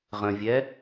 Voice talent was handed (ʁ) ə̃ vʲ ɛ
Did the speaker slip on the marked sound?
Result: no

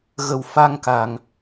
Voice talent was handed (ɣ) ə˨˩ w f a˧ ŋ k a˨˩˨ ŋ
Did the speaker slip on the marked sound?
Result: no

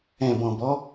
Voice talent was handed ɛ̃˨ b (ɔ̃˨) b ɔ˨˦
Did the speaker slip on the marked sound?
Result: no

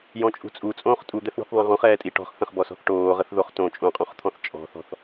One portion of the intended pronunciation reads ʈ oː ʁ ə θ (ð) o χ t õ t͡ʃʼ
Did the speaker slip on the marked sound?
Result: no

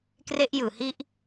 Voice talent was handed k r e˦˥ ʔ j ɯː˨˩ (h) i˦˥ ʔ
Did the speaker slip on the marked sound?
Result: no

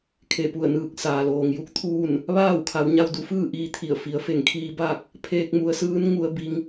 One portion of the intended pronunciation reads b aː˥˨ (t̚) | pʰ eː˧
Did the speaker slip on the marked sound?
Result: yes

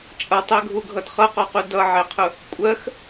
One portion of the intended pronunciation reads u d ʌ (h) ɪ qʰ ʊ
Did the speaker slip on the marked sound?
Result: yes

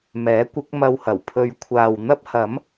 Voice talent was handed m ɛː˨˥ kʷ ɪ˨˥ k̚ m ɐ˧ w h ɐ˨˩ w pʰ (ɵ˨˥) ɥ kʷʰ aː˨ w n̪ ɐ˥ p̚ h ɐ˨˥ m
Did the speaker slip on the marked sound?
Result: yes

